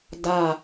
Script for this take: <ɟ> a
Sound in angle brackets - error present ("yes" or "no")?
yes